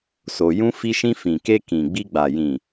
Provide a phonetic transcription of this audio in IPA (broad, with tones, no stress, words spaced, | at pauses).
so˧ jũ˦ fi˧ʃĩ˧ fĩ˨ke˧ kĩ˨ɡ͡bi˧ɡ͡ba˨ jĩ˨